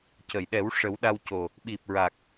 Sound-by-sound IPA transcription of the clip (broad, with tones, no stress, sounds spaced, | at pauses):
c ə˨˩˨ j ɗ ɛ˨˩˦ w ʂ ə˨˩˦ w ɗ a˧ w c o˨˩ | ɓ i˨˩ p̚ ɹ a˨˩ k̚